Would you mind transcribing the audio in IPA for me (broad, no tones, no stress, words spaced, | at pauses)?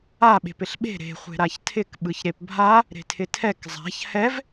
aɓe̤p ɪɬɓe̤ ɾe̤χʷe̤ ɾaçtʰɪk ɓɯçɾepbʱa | ɾe̤tʰɪtʰɛk zˤa̤ç hɛv